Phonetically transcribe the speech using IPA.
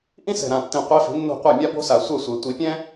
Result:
ʔĩ˥sɛ̤˨˩ɾã˨˩tːĩ˨˩ qʷe˧˥fi̤˩˥ nːo̤˥˩qʷa˥˩ mʲa˥bo̤˥ sa˨˩sʷɛ˥˩sʷe˨˩˦ tʷi˨˩˦pʲɛ̃˥

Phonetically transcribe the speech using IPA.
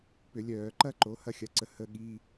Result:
pʏ˧˩˧lʲœː˧˩˧ǃɐ˥ ǃo˩˥ hɐ˥˩xʲɐ˩˥ǀə˩˥ hə˧˥˧ɠi˧˥˧

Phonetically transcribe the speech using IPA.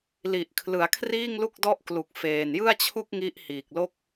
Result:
li˨˩ʔkʰlɯ˩˦a̯kʰriː˥˩ŋ lu˥˩k̚dɔ˥˩ʔ klu˨˩k̚feː˨˩n jɯ˥˩a̯t͡ɕʰu˥˩k̚ ŋi˦˥ʔhiː˨˩k̚lo˥˩k̚

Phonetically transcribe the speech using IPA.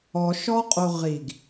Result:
ɔʃɔqʼo ʁiɡ

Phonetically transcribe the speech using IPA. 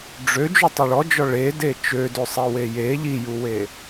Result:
ɖ͡ʐø d͡ʒutˤuɭɔd͡ʒɔ ɭede t͡ʃødøsˤewe je ʎijuwe

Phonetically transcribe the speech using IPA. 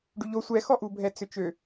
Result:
ɖyʎo sʷɛxɔʔubʱɛ t͡sʏt͡ʃø

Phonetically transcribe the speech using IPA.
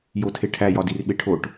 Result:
jotʰeʈʰæ jɒdirɓeʈʰoʈ

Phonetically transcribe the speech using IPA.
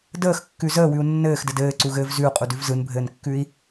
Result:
dəːxkːʉ zəːwʉu̯ nːɘːxdɘd ɘːǀuɣɘːv zʉu̯qʼudʉv zɯnbʱɘːnkːʉi̯

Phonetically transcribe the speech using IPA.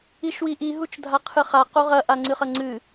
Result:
iʃwiʔi ɦut͡ʃdʱaqʰɨχa qoʁɐ ʔaŋ͡ǀɨχɐŋ͡ǀɨ

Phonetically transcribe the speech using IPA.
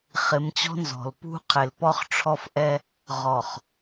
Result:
χɪ˨˦mt͡ɕɔ̤˦nzɔ̤˨l pṳ˦qʰɪ˨l pɔ˦χʈ͡ʂʰɔ˦fʔɛ˦ | ʁɔ˨χ

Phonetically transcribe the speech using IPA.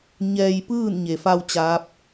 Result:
ɲɛː˧jpɯː˥˨nɲe˩fa˧w t͡ɕaː˧˥p̚

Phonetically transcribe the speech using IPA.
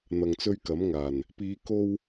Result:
n̪ɐ˧ŋt͡sɵ˥ɥkɐ˨˥mŋaː˨˩n | piː˨˧ko˧w

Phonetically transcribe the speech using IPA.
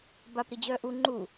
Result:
bap ɾid͡ʑœːʔu ŋ͡ǃu

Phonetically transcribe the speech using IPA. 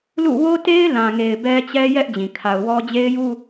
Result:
lṵ˦˨ wo˦te˦ɪ̯lã˨ŋe˨ɪ̯ bɛ˦t͡ɕɛ˦ jɛ˦ʔ d͡ʑĩ˨ kʰa˨ʊ̯wɔ˦ d͡ʑe˦ɪ̯ju˦

